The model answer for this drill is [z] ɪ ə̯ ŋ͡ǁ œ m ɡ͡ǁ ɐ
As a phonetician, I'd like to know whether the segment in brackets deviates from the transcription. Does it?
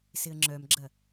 yes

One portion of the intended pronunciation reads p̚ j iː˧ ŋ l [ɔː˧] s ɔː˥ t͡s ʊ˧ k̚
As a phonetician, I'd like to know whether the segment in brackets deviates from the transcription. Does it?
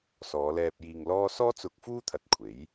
yes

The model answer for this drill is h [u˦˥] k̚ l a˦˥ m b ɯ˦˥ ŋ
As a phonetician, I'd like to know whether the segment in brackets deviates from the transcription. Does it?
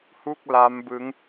yes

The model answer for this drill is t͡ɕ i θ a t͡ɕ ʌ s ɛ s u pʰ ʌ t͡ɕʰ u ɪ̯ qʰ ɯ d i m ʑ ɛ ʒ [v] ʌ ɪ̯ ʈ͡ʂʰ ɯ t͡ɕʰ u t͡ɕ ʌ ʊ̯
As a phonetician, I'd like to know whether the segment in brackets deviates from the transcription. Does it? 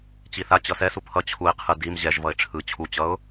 no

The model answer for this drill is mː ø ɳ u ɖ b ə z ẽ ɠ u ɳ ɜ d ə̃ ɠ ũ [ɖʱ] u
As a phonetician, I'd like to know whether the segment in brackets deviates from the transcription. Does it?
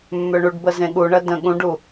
yes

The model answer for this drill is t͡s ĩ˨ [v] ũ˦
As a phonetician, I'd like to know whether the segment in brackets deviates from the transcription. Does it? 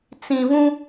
no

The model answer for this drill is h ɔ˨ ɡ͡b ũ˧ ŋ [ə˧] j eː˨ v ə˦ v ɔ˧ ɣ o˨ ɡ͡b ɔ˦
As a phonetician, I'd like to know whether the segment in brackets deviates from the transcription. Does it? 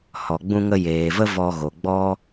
no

